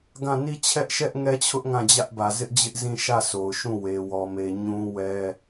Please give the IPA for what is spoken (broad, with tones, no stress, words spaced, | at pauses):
ɡã˦˨ ni˦t͡ɕʰɛ˦ʔʃɛ˦ʔ ŋɛ˦t͡ɕʰʊ˦ʔ ŋã˦˨d͡ʑä˦ʔbä˨ zɪ˦ʔd͡ʑɪ˦ʔ zĩ˦˨ʃä˦˨ so˨ʊ̯ ʃũ˦˨we˨ wɔ˨me˨ɲũ˦ wɛ˦